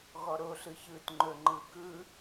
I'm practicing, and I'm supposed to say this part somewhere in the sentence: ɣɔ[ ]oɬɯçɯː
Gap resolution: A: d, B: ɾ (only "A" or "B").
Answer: B